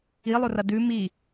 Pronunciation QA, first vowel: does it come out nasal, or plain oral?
oral